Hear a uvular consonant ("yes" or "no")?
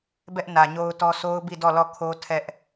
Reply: no